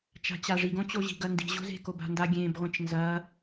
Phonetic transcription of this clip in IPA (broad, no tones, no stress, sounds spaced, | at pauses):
t͡ʃ a̤ t͡ɕ a ʐ i ɡ õ t͡ɕ o ʑ i̤ ɡ ɐ n d i̤ ʑ o̤ z e̤ k o b a̤ n d a ɡʲ ẽ b ʁʷ ẽ t͡ʃ n z ɐ